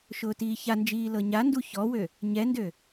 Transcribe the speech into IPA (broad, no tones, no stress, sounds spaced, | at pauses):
ʃ ʊː t iː ç a n d͡ʒ iː l ɤ ɲ a n d u ç ɔ w ø | ɲ ɛ n d ø